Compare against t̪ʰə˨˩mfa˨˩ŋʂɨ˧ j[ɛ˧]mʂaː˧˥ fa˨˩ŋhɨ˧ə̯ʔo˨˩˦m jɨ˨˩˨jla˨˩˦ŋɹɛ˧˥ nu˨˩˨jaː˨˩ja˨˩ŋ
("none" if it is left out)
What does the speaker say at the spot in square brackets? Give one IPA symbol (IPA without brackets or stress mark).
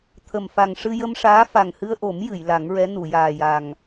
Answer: ə˧